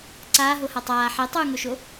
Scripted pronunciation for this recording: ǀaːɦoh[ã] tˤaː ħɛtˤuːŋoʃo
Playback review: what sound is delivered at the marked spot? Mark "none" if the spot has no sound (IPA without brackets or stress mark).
a